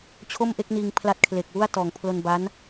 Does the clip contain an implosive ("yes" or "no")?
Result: no